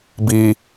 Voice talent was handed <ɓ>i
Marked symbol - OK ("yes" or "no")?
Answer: no